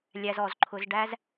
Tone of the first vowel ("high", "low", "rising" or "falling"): low